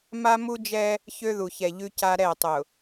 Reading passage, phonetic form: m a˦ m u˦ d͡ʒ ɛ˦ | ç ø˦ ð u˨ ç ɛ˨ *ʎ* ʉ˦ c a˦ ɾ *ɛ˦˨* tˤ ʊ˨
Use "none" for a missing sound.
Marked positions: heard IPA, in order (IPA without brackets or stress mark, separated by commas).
ʎ, ɛ˦˨